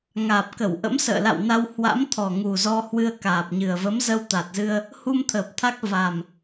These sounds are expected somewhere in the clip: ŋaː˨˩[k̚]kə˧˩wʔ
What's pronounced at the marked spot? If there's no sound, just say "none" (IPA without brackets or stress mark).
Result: p̚